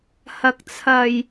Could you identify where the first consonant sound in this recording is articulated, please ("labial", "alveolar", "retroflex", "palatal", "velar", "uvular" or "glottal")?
glottal